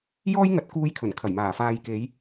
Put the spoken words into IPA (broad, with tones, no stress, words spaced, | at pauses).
jɔː˥jŋɐ˨˥t̚ kuː˧j kʰɵ˨˩nkʰɐ˨˩jmaː˨˩ faː˨jke˨˧j